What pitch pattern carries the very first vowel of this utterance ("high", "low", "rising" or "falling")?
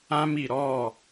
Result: high